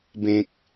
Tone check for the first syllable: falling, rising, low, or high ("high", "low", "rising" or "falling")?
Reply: low